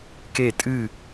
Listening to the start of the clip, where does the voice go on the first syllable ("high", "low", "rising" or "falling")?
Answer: falling